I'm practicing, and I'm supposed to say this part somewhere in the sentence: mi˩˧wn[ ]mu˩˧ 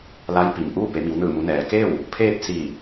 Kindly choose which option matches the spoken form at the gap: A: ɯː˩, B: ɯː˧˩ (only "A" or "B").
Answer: B